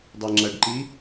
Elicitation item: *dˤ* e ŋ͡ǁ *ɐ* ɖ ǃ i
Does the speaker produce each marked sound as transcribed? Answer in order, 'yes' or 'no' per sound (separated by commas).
yes, yes